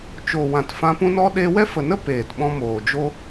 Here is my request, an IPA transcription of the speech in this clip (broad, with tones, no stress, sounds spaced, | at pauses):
t͡ʃ o˨ w ã˨ t f ã˧ p ũ˦ n ɔ˦ ɗ e˧ w ɛ˦ f ə˨ n ə˦ p eː˨ t ɓ ɔ̃˧ m oː˨ d͡ʒ o˦